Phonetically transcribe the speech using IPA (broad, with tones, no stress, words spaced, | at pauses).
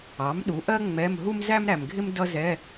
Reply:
ɑ˩˥mɗu˩˥ʔɜ˥ ŋ͡mɛ˧˥˧m ɦu˥mzæ˥mɾæ˨mɡʱɪ˥m dʌ˥zɛ˧˥˧